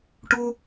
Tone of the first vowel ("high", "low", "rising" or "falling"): high